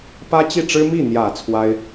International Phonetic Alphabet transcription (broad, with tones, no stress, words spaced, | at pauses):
pä˥t͡ɕi˥˩ʈ͡ʂɻ̩˥ mi˥˩n̪jä˨˩ t͡sʰwa˥ɪ̯